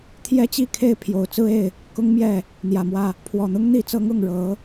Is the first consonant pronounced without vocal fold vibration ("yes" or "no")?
yes